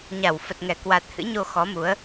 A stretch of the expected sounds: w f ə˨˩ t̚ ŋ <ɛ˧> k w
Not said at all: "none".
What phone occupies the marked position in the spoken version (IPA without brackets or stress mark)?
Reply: ɛ˧˩